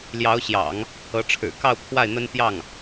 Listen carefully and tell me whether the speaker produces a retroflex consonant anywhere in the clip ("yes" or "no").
yes